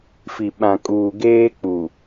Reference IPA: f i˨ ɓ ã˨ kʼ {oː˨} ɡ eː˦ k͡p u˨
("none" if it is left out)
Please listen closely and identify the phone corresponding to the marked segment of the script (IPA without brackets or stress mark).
uː˨